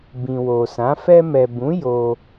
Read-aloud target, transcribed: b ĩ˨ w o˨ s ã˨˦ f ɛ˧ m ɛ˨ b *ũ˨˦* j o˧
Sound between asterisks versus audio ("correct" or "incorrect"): correct